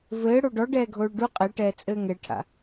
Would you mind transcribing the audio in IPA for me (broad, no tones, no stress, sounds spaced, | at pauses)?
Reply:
v ɘː ɽ o ɖ ɔ ɖ ɛː ɡʱ oː ɭ ɖ u qʼ ɛ ʈ ɛː t͡sʼ ɘː ŋ ɛ ʈʰ a̰